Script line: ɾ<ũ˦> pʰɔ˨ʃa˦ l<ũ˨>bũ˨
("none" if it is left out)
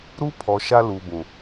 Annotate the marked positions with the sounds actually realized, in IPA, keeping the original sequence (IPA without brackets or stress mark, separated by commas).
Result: u˦, u˨